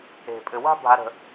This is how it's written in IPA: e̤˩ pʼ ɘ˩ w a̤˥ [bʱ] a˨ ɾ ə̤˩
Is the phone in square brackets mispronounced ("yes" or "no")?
no